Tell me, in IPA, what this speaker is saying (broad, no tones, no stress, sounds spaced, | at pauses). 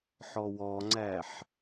ħ ɔ w ɔ ŋ͡ǀ æ ħ